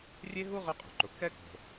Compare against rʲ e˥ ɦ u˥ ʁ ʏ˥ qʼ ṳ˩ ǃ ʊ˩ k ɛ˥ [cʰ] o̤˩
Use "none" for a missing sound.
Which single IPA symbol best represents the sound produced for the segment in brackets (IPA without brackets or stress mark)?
k